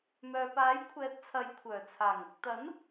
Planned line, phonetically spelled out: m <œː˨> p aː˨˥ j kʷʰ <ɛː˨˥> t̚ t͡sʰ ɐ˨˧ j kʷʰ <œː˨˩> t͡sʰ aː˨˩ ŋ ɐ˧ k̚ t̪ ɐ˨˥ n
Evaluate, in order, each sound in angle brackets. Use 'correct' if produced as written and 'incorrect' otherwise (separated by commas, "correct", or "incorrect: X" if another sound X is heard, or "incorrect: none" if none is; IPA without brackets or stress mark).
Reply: correct, correct, correct